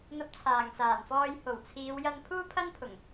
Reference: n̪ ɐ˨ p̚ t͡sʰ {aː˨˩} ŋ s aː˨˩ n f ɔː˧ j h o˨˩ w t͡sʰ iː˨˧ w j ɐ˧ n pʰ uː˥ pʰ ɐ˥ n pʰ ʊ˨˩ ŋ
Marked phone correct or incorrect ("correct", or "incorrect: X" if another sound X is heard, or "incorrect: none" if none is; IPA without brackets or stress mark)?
correct